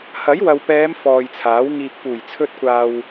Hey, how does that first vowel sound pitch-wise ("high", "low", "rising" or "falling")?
rising